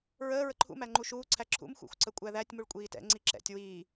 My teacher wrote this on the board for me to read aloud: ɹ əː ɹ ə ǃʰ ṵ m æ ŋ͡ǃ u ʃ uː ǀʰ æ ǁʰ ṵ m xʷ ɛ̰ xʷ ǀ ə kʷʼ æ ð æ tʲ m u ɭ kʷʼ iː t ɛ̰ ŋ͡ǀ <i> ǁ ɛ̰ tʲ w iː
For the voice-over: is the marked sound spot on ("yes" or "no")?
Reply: yes